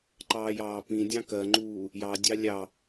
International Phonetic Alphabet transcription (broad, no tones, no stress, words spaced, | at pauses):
ǃɑːjɑːpĩdʲɑ̃ kɜŋ͡ǃuː | jɑdʲɑ lʲɑ